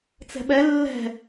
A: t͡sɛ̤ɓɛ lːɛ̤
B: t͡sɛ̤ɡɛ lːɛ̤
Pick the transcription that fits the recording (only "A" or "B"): A